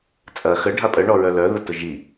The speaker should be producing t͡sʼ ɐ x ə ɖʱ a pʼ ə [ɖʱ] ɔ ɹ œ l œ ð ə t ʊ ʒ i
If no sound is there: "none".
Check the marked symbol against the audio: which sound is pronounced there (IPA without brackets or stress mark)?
ɳ